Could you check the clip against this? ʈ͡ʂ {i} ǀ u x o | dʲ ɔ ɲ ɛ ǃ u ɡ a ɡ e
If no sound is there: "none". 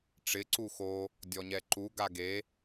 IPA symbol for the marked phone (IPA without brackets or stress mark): ɪ